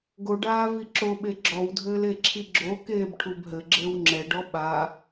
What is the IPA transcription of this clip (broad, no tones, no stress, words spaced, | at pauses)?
ɡoɖaː viǁoɓe ɡ͡ǁɔwdʱɘːl eǁʰiɡ͡ǁokeːb ʈʰubɦɘɡ͡ǁɘːw ŋ͡ǁɛɖɔ ɓa